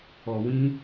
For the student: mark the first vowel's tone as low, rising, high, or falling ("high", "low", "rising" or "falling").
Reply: low